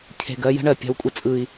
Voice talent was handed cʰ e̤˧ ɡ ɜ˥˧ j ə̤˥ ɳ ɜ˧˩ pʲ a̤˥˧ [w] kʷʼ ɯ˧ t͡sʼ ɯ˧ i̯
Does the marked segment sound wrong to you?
no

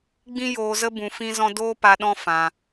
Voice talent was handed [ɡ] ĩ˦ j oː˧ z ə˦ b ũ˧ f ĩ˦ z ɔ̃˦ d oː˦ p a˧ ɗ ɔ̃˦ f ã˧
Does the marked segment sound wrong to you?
yes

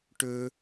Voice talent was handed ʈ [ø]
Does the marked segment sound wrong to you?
no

